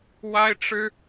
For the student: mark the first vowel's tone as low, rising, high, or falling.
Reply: high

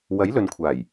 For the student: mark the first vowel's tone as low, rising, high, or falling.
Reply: rising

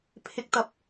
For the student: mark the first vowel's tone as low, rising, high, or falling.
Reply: rising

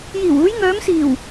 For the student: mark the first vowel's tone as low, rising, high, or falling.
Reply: low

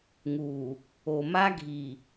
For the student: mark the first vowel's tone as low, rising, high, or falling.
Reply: low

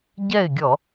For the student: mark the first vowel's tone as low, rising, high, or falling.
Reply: falling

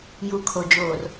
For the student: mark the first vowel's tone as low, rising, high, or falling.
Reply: low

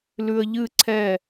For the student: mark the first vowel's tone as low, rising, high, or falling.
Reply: low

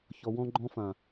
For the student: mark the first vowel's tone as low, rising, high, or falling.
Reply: low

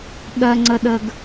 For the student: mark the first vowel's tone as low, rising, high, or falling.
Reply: high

